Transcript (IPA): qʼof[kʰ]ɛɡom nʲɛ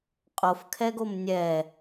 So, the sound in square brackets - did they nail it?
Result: yes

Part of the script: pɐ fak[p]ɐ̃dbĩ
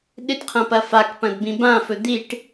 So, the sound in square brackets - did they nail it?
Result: yes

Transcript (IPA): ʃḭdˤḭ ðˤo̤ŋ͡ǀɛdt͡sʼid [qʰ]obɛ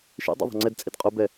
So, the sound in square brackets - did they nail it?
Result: no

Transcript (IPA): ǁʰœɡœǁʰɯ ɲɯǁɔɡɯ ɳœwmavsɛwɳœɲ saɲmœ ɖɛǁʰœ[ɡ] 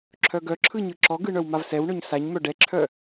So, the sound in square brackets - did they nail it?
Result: no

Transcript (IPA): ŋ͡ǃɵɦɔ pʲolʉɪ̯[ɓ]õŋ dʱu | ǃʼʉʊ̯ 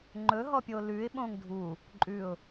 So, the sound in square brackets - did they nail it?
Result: yes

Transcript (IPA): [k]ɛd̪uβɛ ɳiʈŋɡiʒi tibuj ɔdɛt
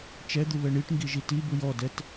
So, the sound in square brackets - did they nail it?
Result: no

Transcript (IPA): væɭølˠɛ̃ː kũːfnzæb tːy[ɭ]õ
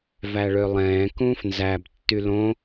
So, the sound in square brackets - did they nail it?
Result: no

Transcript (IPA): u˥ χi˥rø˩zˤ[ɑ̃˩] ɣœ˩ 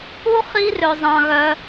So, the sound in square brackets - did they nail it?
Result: yes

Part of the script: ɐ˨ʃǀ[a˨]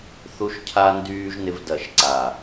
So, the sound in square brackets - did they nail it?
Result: yes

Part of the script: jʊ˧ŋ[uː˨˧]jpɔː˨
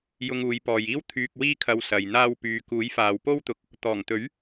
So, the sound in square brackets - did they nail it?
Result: yes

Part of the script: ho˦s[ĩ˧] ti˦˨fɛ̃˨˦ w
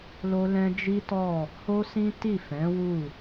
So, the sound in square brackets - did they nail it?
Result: no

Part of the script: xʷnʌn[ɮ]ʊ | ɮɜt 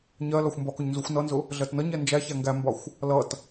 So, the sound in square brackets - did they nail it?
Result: no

